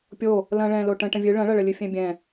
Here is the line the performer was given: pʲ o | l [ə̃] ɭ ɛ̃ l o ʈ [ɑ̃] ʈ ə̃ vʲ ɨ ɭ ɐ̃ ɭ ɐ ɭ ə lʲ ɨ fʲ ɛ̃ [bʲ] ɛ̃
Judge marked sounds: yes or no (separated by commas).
no, no, yes